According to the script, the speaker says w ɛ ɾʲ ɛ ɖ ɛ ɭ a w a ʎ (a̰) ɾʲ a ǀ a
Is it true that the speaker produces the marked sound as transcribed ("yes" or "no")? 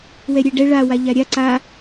no